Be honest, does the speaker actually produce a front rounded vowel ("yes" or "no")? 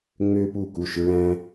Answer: yes